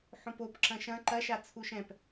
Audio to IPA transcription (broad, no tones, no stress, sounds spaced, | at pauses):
ħ õ p o p ǁ ɐ̃ ʃ ɐ̃ ǃ ɐ ʃ a t͡sʰ u ʃ ɛ̃ p